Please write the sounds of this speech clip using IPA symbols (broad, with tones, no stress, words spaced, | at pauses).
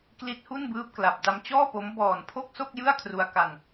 kli˦˥t̚hu˥˩nbɯː˦˥p̚ kla˨˩p̚da˧mt͡ɕɔː˥˩po˦˥m bɔː˨˩npʰo˥˩k̚ so˥˩k̚ jɯ˥˩a̯kʰru˧a̯ka˧n